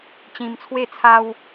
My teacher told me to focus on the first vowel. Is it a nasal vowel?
yes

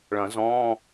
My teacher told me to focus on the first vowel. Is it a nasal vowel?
yes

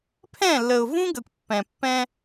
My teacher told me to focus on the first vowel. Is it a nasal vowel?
yes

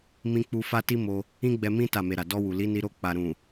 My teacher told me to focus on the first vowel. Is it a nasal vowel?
yes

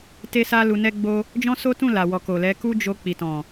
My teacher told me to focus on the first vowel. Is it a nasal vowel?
no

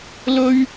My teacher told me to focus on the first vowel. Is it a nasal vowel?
no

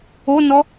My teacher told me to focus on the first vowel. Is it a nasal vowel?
no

